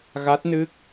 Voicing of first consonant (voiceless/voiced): voiced